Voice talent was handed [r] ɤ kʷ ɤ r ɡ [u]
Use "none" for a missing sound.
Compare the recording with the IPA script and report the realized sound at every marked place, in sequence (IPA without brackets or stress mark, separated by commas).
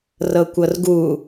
r, u